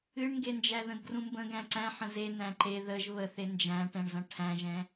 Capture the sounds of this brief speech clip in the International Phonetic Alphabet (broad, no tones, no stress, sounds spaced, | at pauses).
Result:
ɨ ɳ ŋ ɡ e n d͡ʒ æ ð ə̃ d ɡ r ũ m b ə̃ ɡ æ̃ ǀ æ̃ ħ ə̃ z e n æ̃ ǃ e ð ə ʒ β ə θ e n d͡ʒ æ̃ ʈ ɛ̃ ɳ z ɐ̃ ʈʰ æ̃ ʒ ɛ̃